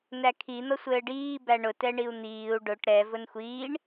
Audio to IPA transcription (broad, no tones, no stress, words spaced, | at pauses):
nækʰi n̪ʌsʷɘːɖiː bæɳʊ tɛɳiu̯n̪iːu̯ ɖʊʈ ɾɛ vʊnxʷiːɳ